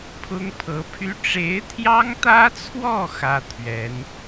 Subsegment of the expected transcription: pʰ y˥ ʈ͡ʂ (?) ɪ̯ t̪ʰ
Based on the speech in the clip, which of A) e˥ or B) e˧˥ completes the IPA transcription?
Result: B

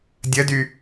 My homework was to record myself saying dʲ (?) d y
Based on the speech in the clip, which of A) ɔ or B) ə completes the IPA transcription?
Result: B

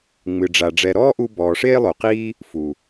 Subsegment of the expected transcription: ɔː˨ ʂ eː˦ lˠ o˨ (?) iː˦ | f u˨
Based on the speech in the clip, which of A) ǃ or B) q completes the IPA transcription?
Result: B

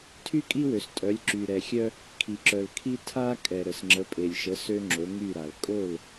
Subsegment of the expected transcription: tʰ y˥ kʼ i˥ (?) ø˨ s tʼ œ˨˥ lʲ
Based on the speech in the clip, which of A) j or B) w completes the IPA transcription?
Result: B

